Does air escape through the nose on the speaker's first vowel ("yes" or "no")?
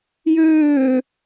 no